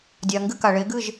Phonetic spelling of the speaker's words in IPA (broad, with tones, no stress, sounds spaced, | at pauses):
dʲ a˩ ŋ ɡ ɨ˥˩ k a˩ ɭ e˩˥ ɡ ɨ˥˩ ʒ